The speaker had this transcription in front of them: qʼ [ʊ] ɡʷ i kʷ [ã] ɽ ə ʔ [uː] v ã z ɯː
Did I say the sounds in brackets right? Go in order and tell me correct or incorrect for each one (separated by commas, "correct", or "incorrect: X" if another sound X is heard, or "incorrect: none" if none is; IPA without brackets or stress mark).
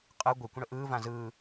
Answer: incorrect: ɯ, incorrect: ə̃, incorrect: ɯː